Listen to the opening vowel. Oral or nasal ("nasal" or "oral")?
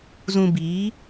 nasal